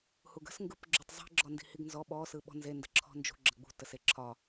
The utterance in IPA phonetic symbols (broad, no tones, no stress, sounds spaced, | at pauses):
h u ɡ ə̤ s ŋ ɡ ɯ p ɡ͡ǁ u tˤ zˤ i̤ ɡ͡ǁ ɔ n d i̤ h i ɡ n z ɔ ɓ ɔ s ɯ ɓ ɔ̤ n z e n d ə̤ ǁʰ ɔ̤ n d͡ʒ ṳ ɡ͡ǁ ə ɡ͡b ṳ t ə s e ǁʰ ɒ